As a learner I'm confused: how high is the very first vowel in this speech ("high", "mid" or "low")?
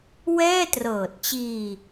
mid